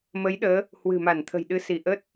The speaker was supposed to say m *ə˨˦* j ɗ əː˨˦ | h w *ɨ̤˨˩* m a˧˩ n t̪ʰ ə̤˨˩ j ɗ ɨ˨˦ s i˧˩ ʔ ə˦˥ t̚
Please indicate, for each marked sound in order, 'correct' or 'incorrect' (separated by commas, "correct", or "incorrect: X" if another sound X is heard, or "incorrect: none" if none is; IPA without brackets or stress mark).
correct, correct